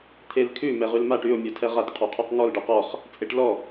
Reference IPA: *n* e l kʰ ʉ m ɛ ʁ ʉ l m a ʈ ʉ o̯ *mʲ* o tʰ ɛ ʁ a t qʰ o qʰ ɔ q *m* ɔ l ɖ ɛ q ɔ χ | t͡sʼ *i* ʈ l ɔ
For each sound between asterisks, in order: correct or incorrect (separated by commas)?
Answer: incorrect, correct, incorrect, incorrect